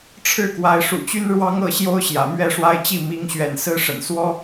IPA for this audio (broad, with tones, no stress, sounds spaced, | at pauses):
ʈ͡ʂʰ ɻ̩˥˨ k w a˨˦ ɪ̯ ʂ ṵ˨˩ t͡ɕ y˦ n ɻ w ɑ˦ ŋ ɤ˥˨ ɕ j o˦ ʊ̯ ɕ j ä̰˨˩ m ɥ ɛ˥˨ ʂ w a˦ ɪ̯ t͡ɕ i˥˨ m i˨˦ ŋ ɕ ɥ ɛ̰˨˩ n s ɹ̩˦ ʂ ə̰˨˩ n s w ɔ˦